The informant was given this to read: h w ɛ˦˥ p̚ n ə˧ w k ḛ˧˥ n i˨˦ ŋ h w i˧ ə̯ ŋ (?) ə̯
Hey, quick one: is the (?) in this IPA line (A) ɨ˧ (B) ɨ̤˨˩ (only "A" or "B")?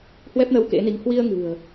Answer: B